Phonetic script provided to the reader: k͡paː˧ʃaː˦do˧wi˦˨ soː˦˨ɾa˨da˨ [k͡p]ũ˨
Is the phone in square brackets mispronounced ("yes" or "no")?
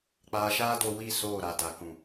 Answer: yes